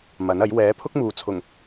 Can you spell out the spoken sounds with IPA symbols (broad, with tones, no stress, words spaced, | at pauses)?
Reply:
mɐ˨˥nɐ˨˥j wɛː˨˥pʰʊ˥k̚muː˨t͡sʰʊ˨˩ŋ